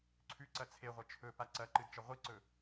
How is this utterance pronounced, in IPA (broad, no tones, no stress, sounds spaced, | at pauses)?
ǀʰ ʉ ǀ ɐ t͡sʰ e ʁʷ ɐ t͡ʃʰ ɵ p a ǀ ɐ ǃ ɨ d t͡ʃ ɐ ʁʷ i ǀ ɵ